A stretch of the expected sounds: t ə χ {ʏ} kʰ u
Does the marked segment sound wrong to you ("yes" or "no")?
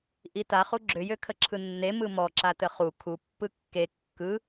yes